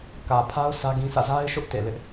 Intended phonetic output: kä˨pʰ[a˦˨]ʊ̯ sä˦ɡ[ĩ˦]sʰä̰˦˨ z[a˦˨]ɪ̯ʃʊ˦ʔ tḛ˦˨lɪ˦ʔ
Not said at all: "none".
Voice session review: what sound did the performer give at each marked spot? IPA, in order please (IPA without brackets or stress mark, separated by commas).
a˦, ĩ˦, a˦